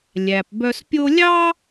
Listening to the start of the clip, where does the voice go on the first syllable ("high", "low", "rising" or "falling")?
low